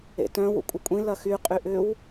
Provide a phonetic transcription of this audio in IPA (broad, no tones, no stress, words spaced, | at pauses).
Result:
ḛtœ̃ wṵkʷʼɪkʷʼĩ lɐxy qʼyʔʏw